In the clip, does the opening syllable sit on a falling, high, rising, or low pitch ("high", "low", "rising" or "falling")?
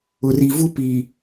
low